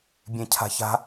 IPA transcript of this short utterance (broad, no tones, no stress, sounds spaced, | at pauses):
bʲ ẽ cʰ a̤ ç a̤